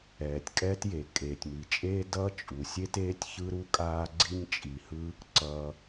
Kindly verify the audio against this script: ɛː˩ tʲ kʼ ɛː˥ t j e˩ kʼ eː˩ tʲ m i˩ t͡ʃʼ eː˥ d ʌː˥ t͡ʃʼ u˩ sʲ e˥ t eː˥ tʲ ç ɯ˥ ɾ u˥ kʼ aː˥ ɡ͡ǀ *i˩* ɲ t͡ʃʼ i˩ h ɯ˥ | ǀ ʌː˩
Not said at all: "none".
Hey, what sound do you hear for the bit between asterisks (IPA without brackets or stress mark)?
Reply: i˥